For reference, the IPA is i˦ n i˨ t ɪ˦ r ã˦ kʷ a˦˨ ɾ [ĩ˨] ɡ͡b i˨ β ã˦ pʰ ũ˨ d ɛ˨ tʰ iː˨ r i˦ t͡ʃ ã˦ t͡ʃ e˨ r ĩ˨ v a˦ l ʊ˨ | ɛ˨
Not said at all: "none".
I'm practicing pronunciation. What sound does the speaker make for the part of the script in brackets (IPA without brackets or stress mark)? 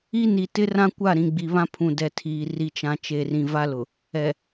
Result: ĩ˨